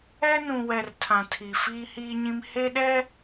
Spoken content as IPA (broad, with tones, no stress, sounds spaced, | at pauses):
ɛ˦ n ũ˨ w ɛ˨ r tʰ ã˨ tʰ i˨ f iː˦ h iː˦ ɲ ĩ˦ m h e˦ ɗ ɛ˦